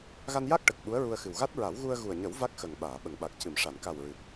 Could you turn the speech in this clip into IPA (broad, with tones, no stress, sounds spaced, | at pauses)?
ɣ a˧ n j a˦˥ k̚ ʈ ə˨˩ k̚ ɓ u˧˥ ə̯ ɹ u˧ ə̯ x ɨ˨˩ w ɣ a˦˥ t̚ ɹ a˨˩˦ w ɣ u˧ ə̯ ɣ u˨˩ ə̯ ɲ ə˨˩˦ w v a˦˥ k̚ x ə˨˩ ŋ ɓ aː˨˩˨ ɓ ə˨˩˨ ŋ ɓ a˨˩ k̚ c ɨ˨˩˨ m ʂ a˨˩˨ n k a˨˩ w ɹ ɨ˨˩ k̚